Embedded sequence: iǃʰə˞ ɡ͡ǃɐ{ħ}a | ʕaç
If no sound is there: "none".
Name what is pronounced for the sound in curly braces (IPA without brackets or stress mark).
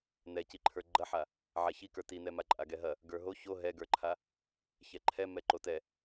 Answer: ħ